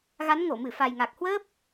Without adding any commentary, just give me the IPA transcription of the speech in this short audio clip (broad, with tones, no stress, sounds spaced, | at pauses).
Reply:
ɣ a˨˦ n ŋ o˧˩ m ɨ˧˩ f a˨˩ j ŋ a˨˩ k̚ h w əː˦˥ p̚